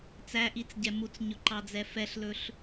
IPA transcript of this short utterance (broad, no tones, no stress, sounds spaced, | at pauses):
t͡s æ ʔ i t͡s ɟ ɛ m u t͡s ɲ ɵ ǃ ɑ d͡z ɛ f ɛ ɬ l ɵ ɬ